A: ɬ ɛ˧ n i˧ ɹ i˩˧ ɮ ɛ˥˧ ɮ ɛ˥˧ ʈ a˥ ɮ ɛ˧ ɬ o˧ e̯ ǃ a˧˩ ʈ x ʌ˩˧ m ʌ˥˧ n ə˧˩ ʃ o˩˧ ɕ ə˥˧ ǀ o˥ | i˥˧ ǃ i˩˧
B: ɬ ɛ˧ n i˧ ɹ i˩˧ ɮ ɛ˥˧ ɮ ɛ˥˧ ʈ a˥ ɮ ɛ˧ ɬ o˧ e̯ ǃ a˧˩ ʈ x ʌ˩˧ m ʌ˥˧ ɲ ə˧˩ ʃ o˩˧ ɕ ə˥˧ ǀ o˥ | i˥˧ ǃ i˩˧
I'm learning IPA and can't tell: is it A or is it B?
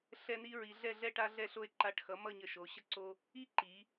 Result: B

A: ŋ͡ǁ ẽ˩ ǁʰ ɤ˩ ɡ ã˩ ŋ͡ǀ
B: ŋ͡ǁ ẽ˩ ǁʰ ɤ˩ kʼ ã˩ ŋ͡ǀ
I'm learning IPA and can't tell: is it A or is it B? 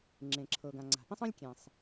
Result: A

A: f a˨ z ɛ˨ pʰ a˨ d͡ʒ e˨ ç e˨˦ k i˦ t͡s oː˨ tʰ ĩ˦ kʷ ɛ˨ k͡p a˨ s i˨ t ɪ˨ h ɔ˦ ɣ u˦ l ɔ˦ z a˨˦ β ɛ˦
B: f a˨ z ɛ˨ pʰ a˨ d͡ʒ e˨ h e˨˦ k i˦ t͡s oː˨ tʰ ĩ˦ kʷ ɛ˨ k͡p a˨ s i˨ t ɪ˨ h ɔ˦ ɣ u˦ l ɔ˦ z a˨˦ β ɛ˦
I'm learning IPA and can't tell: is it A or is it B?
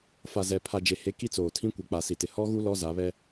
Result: B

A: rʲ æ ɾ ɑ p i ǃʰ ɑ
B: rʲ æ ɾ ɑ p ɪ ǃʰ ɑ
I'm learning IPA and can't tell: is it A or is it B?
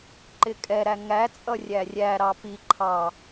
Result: A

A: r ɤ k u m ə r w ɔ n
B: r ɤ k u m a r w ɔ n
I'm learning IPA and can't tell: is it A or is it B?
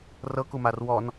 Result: B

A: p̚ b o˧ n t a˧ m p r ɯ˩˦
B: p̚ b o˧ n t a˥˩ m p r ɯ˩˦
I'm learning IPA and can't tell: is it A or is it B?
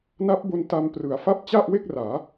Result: A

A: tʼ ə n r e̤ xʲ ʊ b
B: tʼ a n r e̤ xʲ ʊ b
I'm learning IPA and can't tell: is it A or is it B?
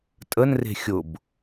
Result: A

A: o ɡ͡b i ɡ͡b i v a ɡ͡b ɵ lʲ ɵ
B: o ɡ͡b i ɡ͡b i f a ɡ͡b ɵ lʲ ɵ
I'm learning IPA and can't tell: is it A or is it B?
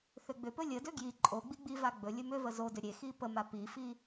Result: A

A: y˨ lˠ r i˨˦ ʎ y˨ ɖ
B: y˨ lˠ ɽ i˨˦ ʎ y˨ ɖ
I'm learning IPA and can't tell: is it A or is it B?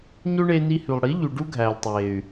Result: B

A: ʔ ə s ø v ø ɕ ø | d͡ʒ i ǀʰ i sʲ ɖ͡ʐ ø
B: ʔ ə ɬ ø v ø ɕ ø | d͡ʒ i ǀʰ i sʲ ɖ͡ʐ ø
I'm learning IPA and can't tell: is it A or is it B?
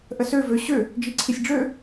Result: A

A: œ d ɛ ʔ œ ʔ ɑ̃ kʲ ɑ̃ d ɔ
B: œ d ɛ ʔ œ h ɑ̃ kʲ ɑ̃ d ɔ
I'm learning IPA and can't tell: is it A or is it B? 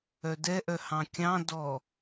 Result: B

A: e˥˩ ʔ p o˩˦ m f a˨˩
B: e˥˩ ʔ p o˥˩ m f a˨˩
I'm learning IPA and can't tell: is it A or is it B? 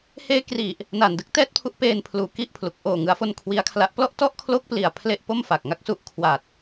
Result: B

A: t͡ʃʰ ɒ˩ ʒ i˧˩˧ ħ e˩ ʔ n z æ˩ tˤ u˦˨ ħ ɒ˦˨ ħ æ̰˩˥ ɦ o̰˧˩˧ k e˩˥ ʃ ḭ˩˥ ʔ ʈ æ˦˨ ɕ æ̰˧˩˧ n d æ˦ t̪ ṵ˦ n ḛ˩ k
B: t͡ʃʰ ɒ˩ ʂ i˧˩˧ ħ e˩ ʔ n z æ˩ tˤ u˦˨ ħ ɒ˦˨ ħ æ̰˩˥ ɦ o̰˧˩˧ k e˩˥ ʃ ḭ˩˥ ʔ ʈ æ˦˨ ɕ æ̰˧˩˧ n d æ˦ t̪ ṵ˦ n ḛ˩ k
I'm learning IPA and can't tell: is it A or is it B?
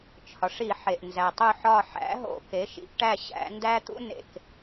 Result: B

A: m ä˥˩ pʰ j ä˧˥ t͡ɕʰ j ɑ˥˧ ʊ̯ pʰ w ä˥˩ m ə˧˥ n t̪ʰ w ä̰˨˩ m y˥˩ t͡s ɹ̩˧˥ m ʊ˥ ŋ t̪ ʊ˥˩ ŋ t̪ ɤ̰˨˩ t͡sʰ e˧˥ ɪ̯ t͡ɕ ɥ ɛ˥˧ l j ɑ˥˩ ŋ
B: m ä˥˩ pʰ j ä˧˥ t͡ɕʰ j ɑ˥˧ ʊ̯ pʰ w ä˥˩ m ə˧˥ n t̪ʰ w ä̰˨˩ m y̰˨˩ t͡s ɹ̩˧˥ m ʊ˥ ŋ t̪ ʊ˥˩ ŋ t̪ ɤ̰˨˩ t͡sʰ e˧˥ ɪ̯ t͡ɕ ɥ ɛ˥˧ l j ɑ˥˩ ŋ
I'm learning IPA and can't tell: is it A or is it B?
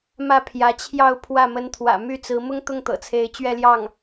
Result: A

